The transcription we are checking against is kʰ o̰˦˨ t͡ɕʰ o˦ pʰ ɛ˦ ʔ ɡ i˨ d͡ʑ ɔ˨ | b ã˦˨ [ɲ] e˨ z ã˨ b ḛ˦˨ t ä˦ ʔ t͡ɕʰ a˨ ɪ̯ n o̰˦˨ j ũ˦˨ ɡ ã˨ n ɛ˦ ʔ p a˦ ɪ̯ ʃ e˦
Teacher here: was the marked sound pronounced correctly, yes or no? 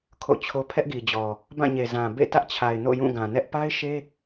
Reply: yes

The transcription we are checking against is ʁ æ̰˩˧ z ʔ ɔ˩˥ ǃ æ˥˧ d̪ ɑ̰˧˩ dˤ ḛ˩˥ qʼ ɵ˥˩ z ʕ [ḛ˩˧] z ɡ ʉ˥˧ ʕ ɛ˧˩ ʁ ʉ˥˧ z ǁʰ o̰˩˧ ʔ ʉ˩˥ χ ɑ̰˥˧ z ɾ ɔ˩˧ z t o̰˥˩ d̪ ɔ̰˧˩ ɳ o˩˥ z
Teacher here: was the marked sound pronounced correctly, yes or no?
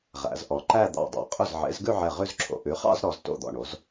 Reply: no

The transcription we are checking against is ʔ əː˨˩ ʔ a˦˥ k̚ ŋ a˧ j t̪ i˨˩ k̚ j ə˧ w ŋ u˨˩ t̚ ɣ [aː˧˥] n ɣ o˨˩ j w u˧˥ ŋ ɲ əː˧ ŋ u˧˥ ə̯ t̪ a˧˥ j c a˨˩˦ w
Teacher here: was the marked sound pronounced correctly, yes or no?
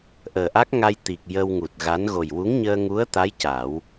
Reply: no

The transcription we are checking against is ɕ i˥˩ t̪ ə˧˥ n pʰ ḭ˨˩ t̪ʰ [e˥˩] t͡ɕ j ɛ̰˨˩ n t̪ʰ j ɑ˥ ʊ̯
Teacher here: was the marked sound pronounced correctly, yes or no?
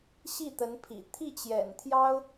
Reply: no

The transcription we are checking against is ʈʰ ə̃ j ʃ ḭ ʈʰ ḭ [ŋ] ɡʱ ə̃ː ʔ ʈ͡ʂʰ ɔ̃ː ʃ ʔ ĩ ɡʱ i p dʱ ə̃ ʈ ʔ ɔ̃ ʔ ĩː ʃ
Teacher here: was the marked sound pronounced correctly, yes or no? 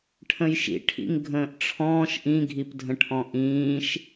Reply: yes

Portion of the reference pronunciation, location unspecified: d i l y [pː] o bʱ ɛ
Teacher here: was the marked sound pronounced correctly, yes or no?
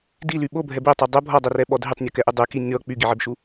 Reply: no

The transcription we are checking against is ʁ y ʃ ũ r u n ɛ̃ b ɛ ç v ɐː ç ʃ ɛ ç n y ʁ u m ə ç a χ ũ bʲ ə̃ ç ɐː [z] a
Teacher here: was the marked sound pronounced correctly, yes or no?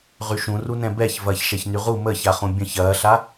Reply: no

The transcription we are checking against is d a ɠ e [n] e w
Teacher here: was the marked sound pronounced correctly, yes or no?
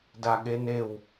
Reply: yes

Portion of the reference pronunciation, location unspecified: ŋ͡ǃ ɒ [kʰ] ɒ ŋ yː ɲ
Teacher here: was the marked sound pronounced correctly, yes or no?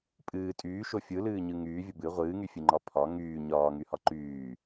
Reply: no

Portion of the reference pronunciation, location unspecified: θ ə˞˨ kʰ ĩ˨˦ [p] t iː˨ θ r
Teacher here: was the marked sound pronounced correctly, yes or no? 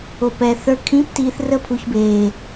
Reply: yes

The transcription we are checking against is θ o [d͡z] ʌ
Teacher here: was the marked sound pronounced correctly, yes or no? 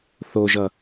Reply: no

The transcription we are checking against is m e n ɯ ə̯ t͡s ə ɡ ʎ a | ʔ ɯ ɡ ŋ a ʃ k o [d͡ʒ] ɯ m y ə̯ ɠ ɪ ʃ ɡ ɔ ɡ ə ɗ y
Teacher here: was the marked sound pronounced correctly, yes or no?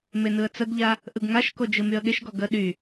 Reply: yes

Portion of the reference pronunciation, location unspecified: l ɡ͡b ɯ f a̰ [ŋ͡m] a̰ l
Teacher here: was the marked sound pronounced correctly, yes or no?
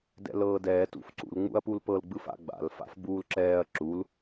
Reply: no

